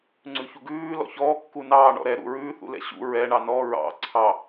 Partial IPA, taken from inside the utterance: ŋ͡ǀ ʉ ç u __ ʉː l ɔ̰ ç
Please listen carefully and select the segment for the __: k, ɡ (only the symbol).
ɡ